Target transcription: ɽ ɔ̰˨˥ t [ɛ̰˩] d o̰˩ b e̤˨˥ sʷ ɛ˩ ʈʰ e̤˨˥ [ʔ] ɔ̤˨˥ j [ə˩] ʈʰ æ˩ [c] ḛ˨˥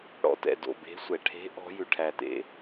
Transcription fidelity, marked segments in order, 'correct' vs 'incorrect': correct, correct, incorrect: ʉ˩, incorrect: t

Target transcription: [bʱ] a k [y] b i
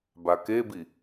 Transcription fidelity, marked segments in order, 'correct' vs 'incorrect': incorrect: b, incorrect: e

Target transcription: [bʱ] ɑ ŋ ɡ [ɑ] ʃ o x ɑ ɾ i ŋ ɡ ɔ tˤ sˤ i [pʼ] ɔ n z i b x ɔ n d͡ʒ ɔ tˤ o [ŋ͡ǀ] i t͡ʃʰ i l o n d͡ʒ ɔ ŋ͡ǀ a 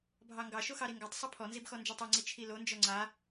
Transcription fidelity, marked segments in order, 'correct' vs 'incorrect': correct, correct, incorrect: pʰ, correct

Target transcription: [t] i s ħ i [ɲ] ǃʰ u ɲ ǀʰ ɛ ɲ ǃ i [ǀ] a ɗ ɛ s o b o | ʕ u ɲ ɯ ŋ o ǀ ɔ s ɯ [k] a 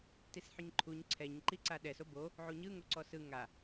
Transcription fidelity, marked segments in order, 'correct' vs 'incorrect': correct, correct, correct, incorrect: ŋ

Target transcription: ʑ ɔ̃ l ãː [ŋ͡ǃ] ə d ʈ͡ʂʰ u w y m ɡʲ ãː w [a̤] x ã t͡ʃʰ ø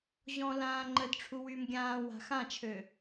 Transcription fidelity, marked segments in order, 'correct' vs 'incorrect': correct, correct

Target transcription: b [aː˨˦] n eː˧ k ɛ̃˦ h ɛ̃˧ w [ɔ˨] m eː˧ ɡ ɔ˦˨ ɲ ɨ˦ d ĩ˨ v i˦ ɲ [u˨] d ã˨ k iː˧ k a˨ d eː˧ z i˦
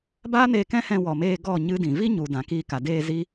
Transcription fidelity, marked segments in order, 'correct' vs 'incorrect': incorrect: aː˦, correct, correct

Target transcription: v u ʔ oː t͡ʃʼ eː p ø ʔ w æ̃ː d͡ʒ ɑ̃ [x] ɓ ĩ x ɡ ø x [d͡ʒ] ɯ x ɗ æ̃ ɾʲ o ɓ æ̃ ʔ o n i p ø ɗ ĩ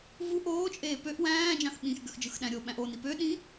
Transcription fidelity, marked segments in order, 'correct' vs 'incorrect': correct, correct

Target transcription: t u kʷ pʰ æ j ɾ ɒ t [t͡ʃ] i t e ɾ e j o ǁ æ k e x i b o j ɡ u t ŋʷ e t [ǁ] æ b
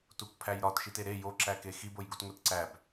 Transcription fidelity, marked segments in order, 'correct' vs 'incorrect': incorrect: ʃ, incorrect: ǀ

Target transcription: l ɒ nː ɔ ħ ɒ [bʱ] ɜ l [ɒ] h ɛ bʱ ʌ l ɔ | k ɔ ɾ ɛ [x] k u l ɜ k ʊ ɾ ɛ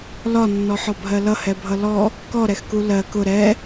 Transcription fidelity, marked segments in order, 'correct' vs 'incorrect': correct, incorrect: ʌ, correct

